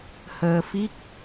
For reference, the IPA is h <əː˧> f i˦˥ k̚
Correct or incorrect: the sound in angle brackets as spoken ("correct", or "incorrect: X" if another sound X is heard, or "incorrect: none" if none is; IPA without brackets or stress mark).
correct